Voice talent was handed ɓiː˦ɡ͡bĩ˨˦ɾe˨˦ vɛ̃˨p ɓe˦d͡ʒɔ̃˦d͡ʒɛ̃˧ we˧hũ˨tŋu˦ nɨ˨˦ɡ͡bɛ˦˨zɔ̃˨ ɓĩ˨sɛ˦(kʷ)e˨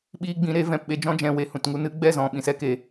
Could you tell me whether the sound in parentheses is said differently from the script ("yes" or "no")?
yes